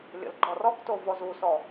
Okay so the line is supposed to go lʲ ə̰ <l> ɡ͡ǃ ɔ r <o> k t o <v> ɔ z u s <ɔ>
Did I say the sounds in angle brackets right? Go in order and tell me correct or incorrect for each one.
correct, incorrect: ɔ, correct, correct

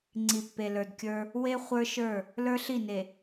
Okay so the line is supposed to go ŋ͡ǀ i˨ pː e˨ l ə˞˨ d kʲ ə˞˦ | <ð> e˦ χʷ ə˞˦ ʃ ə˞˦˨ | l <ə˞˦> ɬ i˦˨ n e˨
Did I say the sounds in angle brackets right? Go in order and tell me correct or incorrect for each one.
incorrect: w, correct

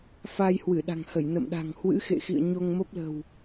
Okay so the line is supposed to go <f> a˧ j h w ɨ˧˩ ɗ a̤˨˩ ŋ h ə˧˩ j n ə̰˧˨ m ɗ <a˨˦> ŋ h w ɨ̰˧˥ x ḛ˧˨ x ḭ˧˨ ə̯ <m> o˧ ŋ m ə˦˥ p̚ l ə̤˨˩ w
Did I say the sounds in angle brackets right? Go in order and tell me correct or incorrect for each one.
correct, incorrect: a̤˨˩, incorrect: ɲ

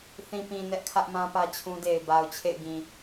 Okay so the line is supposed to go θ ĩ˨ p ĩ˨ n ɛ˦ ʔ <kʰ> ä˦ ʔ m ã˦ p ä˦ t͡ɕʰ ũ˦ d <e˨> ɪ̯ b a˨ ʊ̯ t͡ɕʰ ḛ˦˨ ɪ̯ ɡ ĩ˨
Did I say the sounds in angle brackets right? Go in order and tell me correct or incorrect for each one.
correct, correct

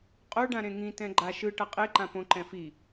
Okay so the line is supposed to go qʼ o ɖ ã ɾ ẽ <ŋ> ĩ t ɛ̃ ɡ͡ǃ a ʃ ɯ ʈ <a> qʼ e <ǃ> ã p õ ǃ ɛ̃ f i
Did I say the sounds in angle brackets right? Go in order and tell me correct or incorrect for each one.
correct, incorrect: ʌ, correct

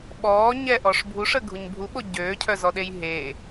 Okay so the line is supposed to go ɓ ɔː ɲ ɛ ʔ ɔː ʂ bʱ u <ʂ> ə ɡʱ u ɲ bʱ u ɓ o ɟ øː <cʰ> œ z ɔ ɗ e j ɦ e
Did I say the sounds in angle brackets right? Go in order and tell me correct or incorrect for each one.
correct, correct

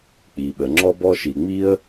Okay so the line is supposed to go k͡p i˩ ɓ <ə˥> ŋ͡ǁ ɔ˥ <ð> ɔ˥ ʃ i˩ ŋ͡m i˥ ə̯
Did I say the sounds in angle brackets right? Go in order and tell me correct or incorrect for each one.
incorrect: ə˩, incorrect: b

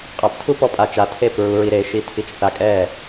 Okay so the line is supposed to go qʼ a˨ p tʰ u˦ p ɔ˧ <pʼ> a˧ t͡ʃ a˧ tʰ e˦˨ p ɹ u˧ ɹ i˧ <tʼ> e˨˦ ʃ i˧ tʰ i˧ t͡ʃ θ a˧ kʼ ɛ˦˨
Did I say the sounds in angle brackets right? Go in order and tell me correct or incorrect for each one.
correct, incorrect: ɾ

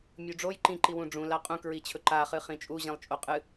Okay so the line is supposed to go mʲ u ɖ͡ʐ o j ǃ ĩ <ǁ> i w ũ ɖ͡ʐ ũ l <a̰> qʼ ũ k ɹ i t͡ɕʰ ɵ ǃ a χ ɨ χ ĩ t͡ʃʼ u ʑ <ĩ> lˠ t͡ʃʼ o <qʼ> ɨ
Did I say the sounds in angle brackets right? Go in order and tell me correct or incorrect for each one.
incorrect: ǃ, incorrect: a, correct, correct

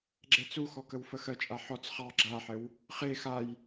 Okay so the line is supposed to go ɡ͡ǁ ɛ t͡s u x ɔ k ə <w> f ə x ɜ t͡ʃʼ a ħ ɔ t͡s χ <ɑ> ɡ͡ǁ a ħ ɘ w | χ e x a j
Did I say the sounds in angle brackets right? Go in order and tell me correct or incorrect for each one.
correct, correct

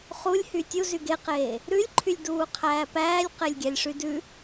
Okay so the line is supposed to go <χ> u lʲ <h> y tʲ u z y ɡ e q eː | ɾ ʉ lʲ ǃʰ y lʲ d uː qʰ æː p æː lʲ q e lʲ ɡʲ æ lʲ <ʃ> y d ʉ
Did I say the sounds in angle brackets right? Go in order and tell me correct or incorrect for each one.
correct, correct, incorrect: ʂ

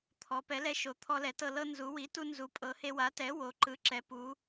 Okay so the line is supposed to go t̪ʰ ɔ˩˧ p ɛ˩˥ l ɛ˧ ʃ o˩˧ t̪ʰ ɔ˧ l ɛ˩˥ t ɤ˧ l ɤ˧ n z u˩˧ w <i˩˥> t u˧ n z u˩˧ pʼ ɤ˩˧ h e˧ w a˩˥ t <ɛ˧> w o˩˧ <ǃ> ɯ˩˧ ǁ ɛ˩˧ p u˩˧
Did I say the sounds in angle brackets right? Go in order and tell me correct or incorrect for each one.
correct, incorrect: ɛ˩˥, correct

